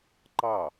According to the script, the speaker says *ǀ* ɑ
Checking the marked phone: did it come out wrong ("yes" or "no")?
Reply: yes